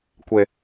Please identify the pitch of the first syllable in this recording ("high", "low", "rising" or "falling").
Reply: low